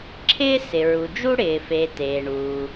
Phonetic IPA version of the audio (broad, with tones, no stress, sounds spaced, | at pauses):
ǁʰ ɪː˥ s ɪ˩ ɹ u˩ d͡ʒ u˥ ɽ ɪː˩ f e˩ t eː˩ ɳ uː˩